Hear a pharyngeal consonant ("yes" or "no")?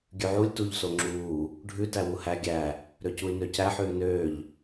yes